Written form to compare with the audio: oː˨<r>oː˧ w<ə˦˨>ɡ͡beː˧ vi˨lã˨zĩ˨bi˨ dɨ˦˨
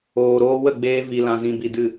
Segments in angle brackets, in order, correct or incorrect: incorrect: ɾ, correct

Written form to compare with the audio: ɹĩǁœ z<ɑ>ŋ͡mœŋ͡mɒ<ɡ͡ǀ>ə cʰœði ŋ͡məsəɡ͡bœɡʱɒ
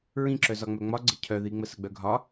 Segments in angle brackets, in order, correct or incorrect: incorrect: ɒ, correct

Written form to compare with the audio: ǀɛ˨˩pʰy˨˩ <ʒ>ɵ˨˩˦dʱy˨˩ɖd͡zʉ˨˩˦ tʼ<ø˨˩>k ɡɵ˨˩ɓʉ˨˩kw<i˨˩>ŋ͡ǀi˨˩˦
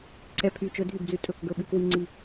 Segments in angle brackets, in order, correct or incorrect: incorrect: t͡ʃ, incorrect: ɵ˨˩, correct

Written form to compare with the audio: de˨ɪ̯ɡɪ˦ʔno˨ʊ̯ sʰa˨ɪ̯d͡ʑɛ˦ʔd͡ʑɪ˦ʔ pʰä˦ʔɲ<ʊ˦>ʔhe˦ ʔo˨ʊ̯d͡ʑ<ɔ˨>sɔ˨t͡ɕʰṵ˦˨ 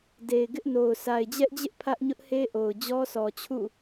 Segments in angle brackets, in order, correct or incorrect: correct, incorrect: ɔ˦

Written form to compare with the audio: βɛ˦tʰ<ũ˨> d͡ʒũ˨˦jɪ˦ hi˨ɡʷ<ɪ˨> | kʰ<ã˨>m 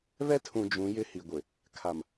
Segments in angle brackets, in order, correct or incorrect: correct, correct, incorrect: a˨

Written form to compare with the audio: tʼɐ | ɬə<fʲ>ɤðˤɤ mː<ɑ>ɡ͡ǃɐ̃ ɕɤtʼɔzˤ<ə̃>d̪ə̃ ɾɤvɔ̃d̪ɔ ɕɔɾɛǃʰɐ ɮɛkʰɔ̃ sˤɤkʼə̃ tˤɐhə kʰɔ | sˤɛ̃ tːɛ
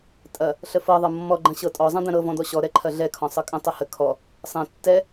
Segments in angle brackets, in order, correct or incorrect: incorrect: f, incorrect: ɔ, incorrect: ɐ̃

